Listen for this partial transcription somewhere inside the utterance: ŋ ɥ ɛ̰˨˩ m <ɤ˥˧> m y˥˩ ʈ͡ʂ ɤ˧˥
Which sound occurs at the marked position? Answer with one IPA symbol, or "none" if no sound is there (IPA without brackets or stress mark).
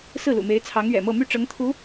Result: ɤ˥˧